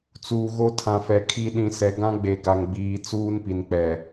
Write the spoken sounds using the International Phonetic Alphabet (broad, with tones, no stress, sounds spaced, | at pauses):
t͡s uː˨ ɣ o˦ tʰ ã˨ f ɛ˨ kʰ i˦ ɗ ĩ˨ s ɛ˨ ɡ ã˦ ɡ͡b e˨ ɡ a˨ ŋ ɡ͡b iː˨ t͡s uː˦ n p i˨ n k͡p ɛ˨